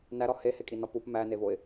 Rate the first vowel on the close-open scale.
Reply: open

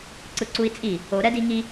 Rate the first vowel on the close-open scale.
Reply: close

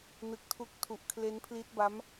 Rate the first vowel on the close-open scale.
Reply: close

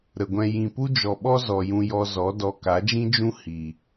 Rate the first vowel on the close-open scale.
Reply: mid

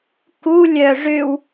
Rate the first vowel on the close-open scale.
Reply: close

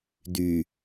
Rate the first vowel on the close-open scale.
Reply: close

